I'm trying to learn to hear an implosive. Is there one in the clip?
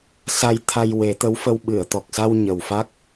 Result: yes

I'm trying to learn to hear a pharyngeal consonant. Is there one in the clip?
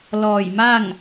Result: no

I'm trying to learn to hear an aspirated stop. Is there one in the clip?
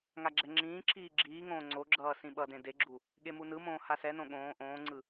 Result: no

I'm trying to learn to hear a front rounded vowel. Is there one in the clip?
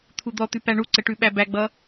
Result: no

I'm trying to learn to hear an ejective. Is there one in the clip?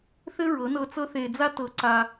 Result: no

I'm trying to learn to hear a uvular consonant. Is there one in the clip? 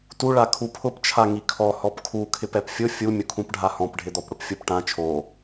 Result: no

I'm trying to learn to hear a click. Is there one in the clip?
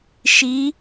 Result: no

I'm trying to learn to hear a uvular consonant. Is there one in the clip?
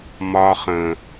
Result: yes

